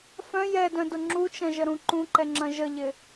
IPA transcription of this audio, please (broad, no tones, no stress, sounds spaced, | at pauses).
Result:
f œ̃ j ɛ d œ̃ d ʊ ŋ͡ǁ u t͡ʃ ɐ̃ ʒ ə ɾ ũ ǃ ũ ǃ ɛ ŋ͡ǁ ɐ̃ ʒ ə ʎ ɪ